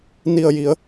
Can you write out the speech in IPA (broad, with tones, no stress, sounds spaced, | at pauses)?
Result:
n i˧˩ ə̯ j i˩˧ ə̯